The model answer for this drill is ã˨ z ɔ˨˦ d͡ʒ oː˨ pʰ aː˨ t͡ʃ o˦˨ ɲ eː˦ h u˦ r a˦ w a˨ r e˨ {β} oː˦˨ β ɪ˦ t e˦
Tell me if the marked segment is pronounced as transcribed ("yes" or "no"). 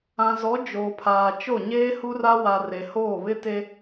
no